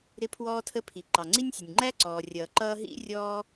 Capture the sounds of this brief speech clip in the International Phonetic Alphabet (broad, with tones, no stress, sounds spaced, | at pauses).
ɾ ɪ˥ pʰ w ɔː˥ tʰ ə˥ pʰ i˩ ǃ ɑ˩ ŋ͡ǀ i˥ nʲ sʲ ə˩ nʲ ŋ͡ǃ æ˥ ǀ ɔː˩ rʲ ʌː˩ ǃ ʌː˥ ɦ ḭ˥ rʲ ɔː˥